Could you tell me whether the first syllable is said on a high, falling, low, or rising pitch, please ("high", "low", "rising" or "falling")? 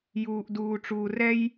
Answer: low